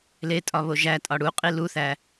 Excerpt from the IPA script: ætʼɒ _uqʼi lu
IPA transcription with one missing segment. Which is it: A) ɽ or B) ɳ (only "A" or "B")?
A